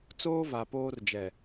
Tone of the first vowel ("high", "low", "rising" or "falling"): high